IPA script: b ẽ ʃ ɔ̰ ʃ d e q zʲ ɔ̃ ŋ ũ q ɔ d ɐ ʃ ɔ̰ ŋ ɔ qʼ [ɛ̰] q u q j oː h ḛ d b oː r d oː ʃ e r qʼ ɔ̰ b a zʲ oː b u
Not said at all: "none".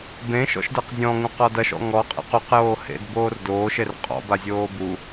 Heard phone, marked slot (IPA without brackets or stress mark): ḛ